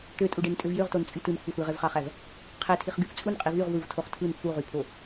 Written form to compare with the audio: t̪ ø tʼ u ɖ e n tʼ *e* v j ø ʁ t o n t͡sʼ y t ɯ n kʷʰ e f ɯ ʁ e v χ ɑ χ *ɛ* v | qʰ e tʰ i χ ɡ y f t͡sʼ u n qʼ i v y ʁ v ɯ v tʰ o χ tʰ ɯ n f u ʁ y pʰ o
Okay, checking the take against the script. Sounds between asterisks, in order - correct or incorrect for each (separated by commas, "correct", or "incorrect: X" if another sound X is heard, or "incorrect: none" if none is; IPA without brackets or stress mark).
incorrect: ø, incorrect: æ